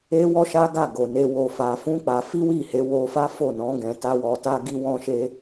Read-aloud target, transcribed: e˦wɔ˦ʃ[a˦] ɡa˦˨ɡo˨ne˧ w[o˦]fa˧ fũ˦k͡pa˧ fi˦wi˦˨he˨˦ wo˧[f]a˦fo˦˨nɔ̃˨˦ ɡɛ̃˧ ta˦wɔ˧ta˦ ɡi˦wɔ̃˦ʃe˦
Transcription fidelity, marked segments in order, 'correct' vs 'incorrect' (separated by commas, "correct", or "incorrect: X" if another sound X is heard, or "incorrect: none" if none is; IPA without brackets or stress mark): correct, incorrect: o˧, correct